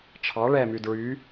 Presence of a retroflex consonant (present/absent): present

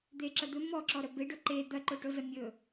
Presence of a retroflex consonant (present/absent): present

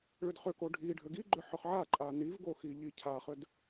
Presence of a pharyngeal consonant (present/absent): present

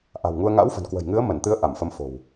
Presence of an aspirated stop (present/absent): absent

